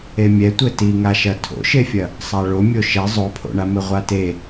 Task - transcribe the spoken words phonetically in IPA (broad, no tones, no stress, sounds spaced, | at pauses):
e mʲ ɛ tʷ ɘ t i ŋ a ʃ ɐ tʰ o̰ ʃ e fʲ ɐ | sˤ a ɭ o mʲ o ʃ ɛ zˤ o pʰ o̰ ɳ a m ɘ ʁʷ a t e